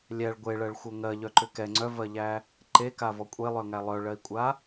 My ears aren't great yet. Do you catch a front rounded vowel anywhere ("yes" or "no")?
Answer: yes